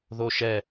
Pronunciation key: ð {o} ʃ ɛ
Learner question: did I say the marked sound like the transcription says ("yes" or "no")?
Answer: yes